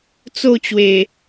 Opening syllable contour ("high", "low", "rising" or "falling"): falling